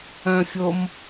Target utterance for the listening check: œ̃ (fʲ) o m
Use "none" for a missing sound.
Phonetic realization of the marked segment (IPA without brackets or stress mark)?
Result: fʲ